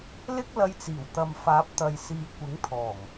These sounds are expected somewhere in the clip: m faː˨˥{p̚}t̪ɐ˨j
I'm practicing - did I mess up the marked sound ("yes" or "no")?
no